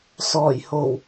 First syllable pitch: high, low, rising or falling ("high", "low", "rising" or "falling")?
low